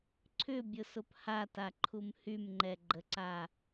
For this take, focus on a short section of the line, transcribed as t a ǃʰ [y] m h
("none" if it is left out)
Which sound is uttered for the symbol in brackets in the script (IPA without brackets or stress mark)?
u